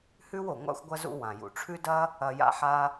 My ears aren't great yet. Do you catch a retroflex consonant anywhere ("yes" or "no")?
yes